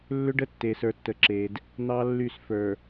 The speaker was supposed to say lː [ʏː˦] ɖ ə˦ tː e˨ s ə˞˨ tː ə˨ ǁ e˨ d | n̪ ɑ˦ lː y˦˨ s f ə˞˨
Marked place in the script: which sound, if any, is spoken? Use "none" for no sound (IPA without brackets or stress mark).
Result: ʏ˦